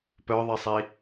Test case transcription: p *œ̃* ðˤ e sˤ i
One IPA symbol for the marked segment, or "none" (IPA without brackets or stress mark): œ